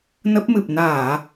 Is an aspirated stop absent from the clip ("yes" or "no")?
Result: yes